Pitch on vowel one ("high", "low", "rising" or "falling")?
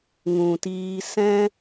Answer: low